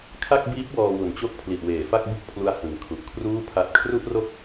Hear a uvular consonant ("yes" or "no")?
no